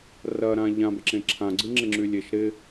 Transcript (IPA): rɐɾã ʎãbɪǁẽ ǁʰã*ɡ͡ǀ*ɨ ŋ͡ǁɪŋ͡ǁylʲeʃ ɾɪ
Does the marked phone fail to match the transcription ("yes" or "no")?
no